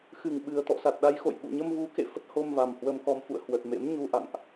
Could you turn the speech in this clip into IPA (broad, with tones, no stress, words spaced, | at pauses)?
xɨ˨˩ŋɓɨ˨˩ə̯ t̪ɔ̰˧˨sa˨˩t̚ɗa˧jxo̰˧˨j ɓṵ˧˨ɲə˧mvu˨˦kḛ˧˨ fə˦˥t̚ho˧m va˨˩mhwə˧mkɔ˧mfṵ˧˨ə̯ hwə˨˩t̚mḛ˧˥mɲu˧ ʔa̰˧˨ŋʔ